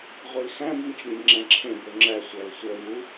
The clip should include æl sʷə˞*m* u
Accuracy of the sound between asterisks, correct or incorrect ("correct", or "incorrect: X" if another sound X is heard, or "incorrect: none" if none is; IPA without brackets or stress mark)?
correct